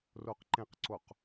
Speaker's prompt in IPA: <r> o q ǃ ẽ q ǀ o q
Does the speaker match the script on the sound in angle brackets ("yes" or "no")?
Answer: yes